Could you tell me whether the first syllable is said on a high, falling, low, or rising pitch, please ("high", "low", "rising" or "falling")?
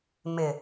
low